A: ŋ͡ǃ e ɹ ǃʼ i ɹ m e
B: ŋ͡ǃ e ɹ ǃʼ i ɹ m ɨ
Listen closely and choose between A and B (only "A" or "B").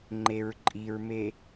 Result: A